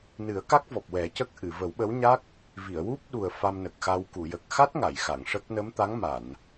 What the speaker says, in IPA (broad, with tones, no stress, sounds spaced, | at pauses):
n ɨ˨˩˦ ə̯ k a˦˥ k̚ v ɔ˨˩ p̚ w ɛ˨˩˦ c ə˦˥ k̚ ʔ ɨ˨˩˨ v ə˨˩˦ w ɓ ə˧˥ w ɲ a˦˥ k̚ | v i˨˩˨ ə̯ w u˦˥ p̚ ɗ u˨˩ ə̯ f a˧ m n ə˨˩ k̚ x a˧ w k u˨˩˨ j ə˨˩ k̚ x a˦˥ t̚ ŋ a˨˩˨ j x a˨˩˨ ŋ ʂ ə˦˥ k̚ n ə˧˥ m t̪ a˧˥ ŋ m a˨˩˨ n